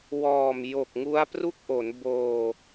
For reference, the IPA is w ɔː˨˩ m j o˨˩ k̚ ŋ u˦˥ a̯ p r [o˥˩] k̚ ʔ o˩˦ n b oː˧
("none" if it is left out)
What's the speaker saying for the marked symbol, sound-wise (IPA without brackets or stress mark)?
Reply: u˥˩